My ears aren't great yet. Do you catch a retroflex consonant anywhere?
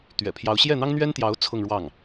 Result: yes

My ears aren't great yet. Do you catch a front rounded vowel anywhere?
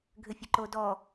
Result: yes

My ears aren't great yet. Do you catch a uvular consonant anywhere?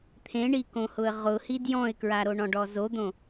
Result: yes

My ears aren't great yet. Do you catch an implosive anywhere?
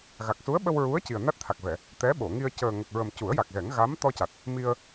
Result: yes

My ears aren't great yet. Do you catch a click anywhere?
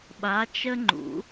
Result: yes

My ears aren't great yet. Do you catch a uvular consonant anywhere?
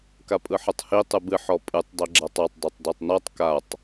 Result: no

